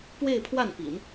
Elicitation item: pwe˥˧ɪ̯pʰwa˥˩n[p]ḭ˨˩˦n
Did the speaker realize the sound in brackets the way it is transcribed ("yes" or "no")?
yes